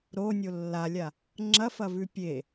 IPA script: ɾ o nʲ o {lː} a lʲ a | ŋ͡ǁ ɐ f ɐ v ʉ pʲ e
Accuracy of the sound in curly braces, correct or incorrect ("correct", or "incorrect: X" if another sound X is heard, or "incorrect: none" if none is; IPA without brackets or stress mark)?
correct